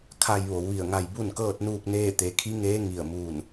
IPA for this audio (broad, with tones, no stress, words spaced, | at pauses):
kʰa˧j ʋo˩˧wʋi˧˩ə̯ŋa˧j bu˥˨nkɤː˥˨t̚nuː˥˨k̚neː˥˨ t̪e˩˧kʰi˧˥ŋeː˧˥ ŋi˧˩ə̯muː˧˩n